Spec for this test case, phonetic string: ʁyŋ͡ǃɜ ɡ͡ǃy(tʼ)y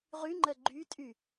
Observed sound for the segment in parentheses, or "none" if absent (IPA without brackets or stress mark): tʼ